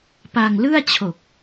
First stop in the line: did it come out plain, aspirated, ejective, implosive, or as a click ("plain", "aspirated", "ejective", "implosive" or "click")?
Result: plain